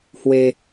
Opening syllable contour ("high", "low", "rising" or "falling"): high